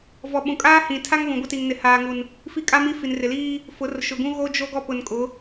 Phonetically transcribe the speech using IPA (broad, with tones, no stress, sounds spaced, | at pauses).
v ɔ˨˦ ɓ ũ˨ kʼ aː˦ h ĩ˨ tʰ a˦ ŋ β ũ˨ ɡʷ ɪ˦ t i˨ ŋ n ɪ˨ h aː˨ ŋ u˨ n | f i˦ kʼ a˦ m i˦ f i˨ n r ɪ˨ l iː˦ | f ʊ˨˦ r ʃ ʊ˨ ɡ ũ˦ ɣ o˦ d͡ʒ o˦ ɡ ɔ˦ p ʊ˨ n kʼ ʊ˨˦